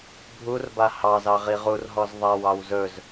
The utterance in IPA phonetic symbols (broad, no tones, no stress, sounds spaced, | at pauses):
bʱ u r b a h ɑ z ɑ ʁ i ʁ u r ɦ ɔ z ðˤ a w ɑ w z ɵ z